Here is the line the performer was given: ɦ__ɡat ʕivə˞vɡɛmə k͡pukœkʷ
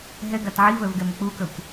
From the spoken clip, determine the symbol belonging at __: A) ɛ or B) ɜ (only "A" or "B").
A